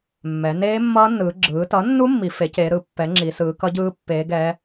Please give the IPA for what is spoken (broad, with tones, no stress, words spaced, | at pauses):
mːɛ˩˧ neː˦˥mːʌː˦˥nːɯː˩˧ ɡ͡ǁɯː˩˧tʌ˩˥nːu˦˥ mːi˩˧fe˩˥ce˩˧ ɾɯ˩˥ pːɛ˩˥ŋ͡ǁi˩˧ sɯː˩˧kʌ˦˥ɟɯː˦˥ pːeː˩˧ɡɛ˩˧